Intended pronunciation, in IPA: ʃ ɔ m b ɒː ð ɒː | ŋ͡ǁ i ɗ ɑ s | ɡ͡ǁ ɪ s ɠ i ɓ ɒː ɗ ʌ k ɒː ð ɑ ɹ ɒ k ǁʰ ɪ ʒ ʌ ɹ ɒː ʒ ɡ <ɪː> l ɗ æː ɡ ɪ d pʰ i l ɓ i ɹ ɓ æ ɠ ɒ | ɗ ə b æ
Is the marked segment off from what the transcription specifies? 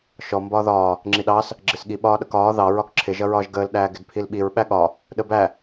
yes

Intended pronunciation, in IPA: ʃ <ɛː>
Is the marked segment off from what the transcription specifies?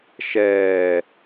no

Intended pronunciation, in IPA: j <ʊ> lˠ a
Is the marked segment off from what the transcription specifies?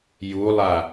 yes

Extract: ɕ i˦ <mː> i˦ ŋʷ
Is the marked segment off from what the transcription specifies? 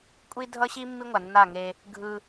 no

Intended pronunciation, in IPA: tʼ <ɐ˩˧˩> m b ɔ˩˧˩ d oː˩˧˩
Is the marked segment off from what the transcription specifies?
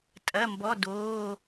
no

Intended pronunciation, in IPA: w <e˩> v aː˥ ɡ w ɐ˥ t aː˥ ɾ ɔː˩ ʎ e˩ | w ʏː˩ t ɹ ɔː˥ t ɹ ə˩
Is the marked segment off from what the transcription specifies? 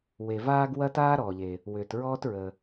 no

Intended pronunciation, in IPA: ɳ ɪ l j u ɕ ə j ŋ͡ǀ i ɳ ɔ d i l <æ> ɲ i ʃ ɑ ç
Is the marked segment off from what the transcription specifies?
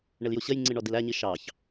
no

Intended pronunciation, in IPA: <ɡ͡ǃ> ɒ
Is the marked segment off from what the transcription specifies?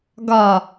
yes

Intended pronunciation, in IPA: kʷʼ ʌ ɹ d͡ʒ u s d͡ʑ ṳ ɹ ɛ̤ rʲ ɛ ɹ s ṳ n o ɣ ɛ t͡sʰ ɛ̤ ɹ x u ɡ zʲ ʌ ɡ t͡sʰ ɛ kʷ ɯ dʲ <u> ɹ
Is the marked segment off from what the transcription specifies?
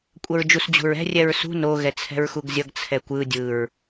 yes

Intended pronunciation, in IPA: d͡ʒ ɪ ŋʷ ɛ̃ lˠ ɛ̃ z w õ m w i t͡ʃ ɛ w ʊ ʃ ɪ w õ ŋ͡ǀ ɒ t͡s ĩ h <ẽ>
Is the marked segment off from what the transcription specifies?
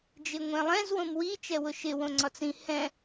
yes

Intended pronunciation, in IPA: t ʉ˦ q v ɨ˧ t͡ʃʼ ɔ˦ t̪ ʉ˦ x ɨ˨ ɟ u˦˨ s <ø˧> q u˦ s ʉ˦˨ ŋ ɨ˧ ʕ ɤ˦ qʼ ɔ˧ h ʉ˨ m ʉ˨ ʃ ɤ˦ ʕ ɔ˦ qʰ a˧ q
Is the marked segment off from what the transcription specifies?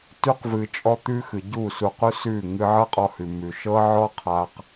yes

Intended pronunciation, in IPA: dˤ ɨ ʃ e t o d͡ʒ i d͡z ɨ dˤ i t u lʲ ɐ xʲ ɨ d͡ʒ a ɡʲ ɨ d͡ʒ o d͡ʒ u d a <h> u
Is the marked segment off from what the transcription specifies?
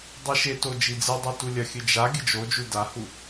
no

